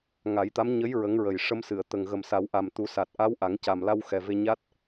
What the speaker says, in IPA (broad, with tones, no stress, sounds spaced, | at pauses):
ŋ a˨˩˦ j t̪ a˧˥ m ɲ ə˧˥ j ɹ ə˧˥ ŋ ɹ ə˨˩ j ʂ ə˧ m s ɨ˨˩˨ ə̯ t̪ ə˨˩ ŋ ɣ ə˨˩ m s a˨˩˦ w ʔ a˨˩ m t̪ u˨˩˦ s a˨˩ t̚ ʔ a˧˥ w ʔ a˨˩˦ ŋ c a˨˩ m l a˧ w x ɛ˨˩ v e˧ ɲ a˦˥ t̚